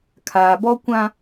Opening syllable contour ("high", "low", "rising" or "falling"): low